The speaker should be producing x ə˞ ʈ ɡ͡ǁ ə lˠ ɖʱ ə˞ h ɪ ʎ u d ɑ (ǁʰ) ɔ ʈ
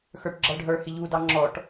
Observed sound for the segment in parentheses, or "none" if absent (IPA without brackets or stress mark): ŋ͡ǁ